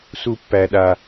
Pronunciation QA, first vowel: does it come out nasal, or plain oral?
oral